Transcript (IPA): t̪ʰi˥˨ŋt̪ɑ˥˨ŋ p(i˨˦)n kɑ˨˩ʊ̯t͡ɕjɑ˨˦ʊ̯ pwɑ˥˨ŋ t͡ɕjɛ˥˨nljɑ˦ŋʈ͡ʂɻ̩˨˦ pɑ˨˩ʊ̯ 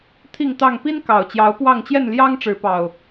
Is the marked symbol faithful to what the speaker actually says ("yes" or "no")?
no